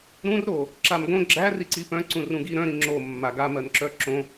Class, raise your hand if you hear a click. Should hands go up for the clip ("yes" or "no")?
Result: yes